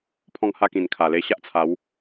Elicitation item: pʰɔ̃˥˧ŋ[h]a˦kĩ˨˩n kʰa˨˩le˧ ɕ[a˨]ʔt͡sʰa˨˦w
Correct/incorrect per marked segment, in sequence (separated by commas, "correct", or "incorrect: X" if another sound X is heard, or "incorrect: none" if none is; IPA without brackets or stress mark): correct, incorrect: a˦